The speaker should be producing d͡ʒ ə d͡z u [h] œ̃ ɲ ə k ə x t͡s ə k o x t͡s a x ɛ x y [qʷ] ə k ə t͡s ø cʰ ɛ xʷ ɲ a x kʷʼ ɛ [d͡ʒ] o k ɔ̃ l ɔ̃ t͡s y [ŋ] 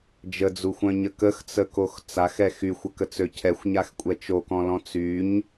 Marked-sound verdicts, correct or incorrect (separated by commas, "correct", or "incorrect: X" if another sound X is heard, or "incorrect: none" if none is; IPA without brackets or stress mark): incorrect: xʷ, incorrect: xʷ, incorrect: t͡ʃ, incorrect: ɲ